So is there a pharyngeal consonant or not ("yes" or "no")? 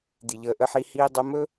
yes